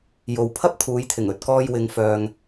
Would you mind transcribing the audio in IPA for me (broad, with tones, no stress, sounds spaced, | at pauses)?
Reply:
j o˨ w pʰ ɐ˥ p̚ t̪ʰ uː˨˧ j t̪ʰ ɪ˨˩ ŋ ɵ˨ t̚ k ɔː˧ j w ɪ˨˧ ŋ f œː˨ ŋ